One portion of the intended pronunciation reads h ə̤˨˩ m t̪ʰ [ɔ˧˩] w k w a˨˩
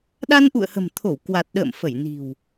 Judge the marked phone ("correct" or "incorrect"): incorrect